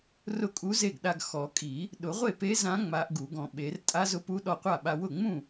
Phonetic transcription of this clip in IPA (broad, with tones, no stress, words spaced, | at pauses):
rʊ˥˩kʼu˧˥ze˥˩ɡɗa˧ɡ xɔ˨˩˦kʼi˨˩˦ | ɗʊ˨˩˦ʁʷe˥˩pe˧˥ zã˧˥ ŋ͡ma˧˥ʔɡu˨˩˦ɡɔ̃˧ ɓe˨˩˦r tʼa˧˥zʊ˧˥pu˧˥ ɗɔ˧qʷa˥˩ ɓa˧ wʊ˥˩ŋ͡mũ˥˩